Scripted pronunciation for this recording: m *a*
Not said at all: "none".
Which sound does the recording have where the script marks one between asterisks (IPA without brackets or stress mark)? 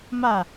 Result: a